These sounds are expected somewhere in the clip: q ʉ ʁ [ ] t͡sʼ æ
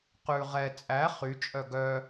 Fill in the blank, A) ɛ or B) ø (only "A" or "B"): A